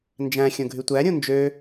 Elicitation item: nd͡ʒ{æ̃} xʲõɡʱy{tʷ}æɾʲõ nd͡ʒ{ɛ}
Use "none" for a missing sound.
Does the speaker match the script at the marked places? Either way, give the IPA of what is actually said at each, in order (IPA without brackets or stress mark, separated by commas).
æ̃, tʷ, ø